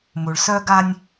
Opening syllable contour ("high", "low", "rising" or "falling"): low